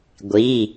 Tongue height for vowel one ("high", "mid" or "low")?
high